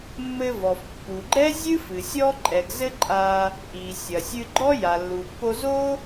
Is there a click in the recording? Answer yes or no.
yes